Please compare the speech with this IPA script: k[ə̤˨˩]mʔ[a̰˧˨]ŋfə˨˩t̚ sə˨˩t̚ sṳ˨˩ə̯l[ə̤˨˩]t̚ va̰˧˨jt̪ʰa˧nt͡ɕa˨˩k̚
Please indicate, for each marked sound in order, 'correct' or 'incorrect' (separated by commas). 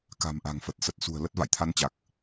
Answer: incorrect, incorrect, incorrect